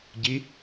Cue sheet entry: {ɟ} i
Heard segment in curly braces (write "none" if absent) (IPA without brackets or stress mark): ɟ